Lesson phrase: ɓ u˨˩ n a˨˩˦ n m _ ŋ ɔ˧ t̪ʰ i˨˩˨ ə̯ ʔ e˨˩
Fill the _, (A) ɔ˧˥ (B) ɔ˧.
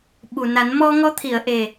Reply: B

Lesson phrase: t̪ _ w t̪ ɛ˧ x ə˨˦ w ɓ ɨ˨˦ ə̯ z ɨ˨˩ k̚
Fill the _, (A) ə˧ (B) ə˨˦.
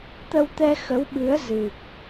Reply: A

